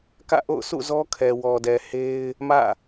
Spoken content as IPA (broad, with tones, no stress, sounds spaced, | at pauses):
k ä̰˦˨ ʔ o̰˦˨ ʊ̯ s ṵ˦˨ z ɔ˦ kʰ ɛ˨ w ɔ˨ d ɛ˨ h e˦ ɪ̯ | m ä̰˦˨